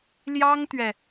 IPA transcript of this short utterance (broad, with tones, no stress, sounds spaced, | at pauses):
l j ɑ˥ ŋ t̪ ɥ ɛ˨